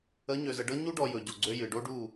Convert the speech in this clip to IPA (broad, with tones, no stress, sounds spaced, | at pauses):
ə˨˦ ɲ ø˨ z ə˨ ɖ ɤ˦ ɲ u˦ ɖ ɔ˨ j ɵ˨ ɟ o˨ ɡ͡ǀ ø˦ j ɨ˨ ɖ o˦ ɖ u˦˨